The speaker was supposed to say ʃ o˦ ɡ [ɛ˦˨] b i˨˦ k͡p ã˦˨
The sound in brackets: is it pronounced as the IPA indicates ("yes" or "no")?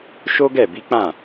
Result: yes